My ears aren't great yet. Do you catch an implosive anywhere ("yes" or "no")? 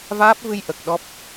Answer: yes